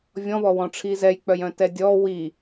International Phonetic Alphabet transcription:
vʲ ɔ̃ β ɔ w ɔ̃ ʈ͡ʂʰ i z ɛ j k͡p œ j œ̃ t ɛ dʲ ɔ w i

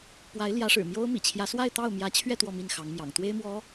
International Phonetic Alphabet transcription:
p w a˧˥ ɪ̯ l j ä˧˥ ʂ ɻ̩˨˩ m j o˥ ʊ̯ m ḭ˨˩ t͡ɕʰ j ä˧˥ s w a˥˧ ɪ̯ t̪ ɑ˥˩ ʊ̯ m j ä˧˥ t͡ɕʰ ɥ ɛ˥˧ t̪ w ɔ˥˧ m i˥˩ n x ɑ˧˥ ŋ m j ɑ̰˨˩ ŋ t̪ w e˥ ɪ̯ m w ɔ˧˥

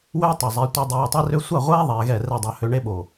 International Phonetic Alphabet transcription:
w ø˦ w tˤ o˨ zˤ e˨˦ tʷ i˧ dˤ oː˧ tˤ i˦ r ø˦ sʷ a˦˨ ʁʷ ɛː˦ ðˤ ɛː˧ ɣ ɛ˦˨ r ɛ˦˨ dˤ a˧ h ø˧ ɳ e˦ ɓ o˨

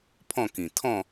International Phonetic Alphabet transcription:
pʰ ɔ̃˥˧ k ĩ˨˩ t̪ʰ ɔ̃˥˧

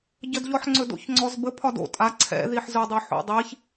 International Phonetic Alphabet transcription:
ɟ ə d ʎ ɔ ħ ŋ͡ǀ ɵ d o̰ ç ŋ͡ǀ ɔ z b ə pʰ ɒ d o̰ tʼ a ǀʰ ɛ̰ ð i ħ z ɵ dˤ ɵ ħ o̰ dˤ i ç

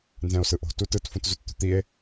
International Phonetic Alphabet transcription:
n z ɛ̃ o̯ s ɯ ʔ o̤ t u t ɯ t f ũ t z u t t̪ ṳ t̪ i e̯

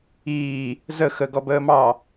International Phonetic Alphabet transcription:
iː | z ə x ə ɡ ɔ b əː m ɑ

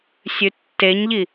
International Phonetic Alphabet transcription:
sʲ ʉ tː e ɲ ʎ i

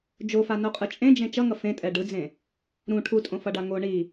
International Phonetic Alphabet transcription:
d͡ʒ o f a n o qʼ ɯ t͡ʃʼ ẽ d͡ʒ ẽ t͡ʃ ʌ ŋ ʌ f ẽ tʼ ɛ ɖ ɯ d͡z ẽ | ɾ ũ ʈʰ u tʼ õ f ʌ ɖ a ŋ o ɳ i

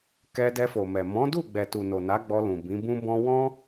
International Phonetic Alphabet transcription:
k ɛ˧ d ɛ˧ f o˨ m ɛ˨ m ɔ̃˨˦ d u˦˨ ɡ͡b ɛ˨ t u˨ n o˨ n a˨˦ ɡ͡b ɔ˧ l ũ˨ b ĩ˨˦ b ũ˦ b ɔ̃˦ w ɔ̃˦

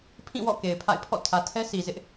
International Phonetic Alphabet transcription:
pʰ ĩ˦˨ w ɔ̰˦˨ k e˨ ɪ̯ pʰ a̰˦˨ ɪ̯ pʰ ɔ̰˦˨ tʰ ä˨ tʰ ɛ˦ s i˨ z ɪ˦ ʔ

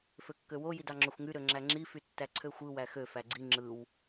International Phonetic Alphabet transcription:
f ø kː ø w o j i d ɑ ŋ͡ǁ o xʷ ŋ y ɾ ø ŋ͡ǁ æ ŋ͡ǁ i f y tː æ ǀʰ ø xʷ ɯ w æ x ø f æ ɡ͡ǀ i ŋ͡ǁ ɯ w

